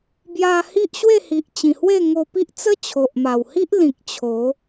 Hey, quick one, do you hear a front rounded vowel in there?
no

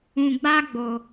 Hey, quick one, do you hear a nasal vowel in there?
yes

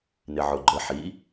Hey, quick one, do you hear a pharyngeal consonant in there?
yes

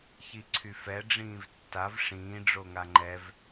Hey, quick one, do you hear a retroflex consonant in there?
yes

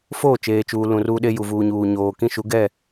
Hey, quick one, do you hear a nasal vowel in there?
yes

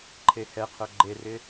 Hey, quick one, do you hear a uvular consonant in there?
yes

